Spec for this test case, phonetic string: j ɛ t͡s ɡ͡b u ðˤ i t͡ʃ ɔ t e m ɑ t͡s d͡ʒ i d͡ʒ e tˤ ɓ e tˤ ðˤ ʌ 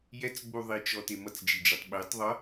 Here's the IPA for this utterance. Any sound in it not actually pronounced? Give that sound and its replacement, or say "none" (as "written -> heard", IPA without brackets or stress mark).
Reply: ɑ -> ʌ